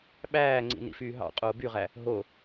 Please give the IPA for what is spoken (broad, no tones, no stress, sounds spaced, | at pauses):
ɓ æː ŋ͡ǀ ḭ n ḭ f yː ɦ ɑ̰ qʼ oː b y ʁ æ | ɦ o